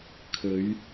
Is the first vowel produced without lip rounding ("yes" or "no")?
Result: no